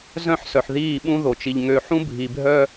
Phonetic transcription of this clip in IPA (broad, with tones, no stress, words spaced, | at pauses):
zœ̃˦˨ħsœ˨ħðiː˦˨ɓũ˦ ðo˨t͡ʃi˨ʎ ŋø˨ħũ˦bʱi˨bʱœ˦